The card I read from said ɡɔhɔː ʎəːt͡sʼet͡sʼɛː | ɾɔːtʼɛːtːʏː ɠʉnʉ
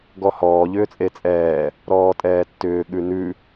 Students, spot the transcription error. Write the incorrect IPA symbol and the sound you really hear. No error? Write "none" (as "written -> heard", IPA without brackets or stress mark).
əː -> ʏː